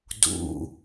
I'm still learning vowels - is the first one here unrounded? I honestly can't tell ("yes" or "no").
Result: no